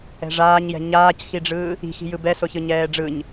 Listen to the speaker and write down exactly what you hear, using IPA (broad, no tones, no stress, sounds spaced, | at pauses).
ɛ̤ ʐ aː ɲ j ɛ̤ ɲ aː c x i ɖ͡ʐ ɯː | i̤ x i̤ j ɯ b ɛ s o ç ɯ ɲ ɛː ɖ͡ʐ ɯ ɲ